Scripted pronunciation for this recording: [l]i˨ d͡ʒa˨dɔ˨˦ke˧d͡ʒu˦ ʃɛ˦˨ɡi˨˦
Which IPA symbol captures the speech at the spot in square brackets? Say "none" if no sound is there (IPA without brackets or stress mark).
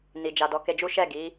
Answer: n